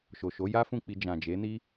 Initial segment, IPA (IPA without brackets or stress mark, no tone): ʃ